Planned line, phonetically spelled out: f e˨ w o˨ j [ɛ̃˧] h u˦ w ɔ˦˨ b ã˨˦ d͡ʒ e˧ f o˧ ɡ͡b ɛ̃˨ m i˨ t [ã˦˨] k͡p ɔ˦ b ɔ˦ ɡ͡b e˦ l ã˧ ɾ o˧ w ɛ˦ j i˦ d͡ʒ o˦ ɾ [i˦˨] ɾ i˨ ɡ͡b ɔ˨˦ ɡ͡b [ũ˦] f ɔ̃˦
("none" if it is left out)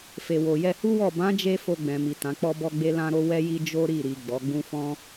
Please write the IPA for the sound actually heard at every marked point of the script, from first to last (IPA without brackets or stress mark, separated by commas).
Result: ɛ˧, ã˨˦, i˦˨, ũ˦